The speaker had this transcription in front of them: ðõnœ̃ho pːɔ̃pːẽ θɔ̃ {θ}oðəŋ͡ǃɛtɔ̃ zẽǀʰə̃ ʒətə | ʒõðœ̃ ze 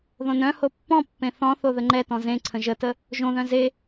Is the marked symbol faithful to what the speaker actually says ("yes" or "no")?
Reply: yes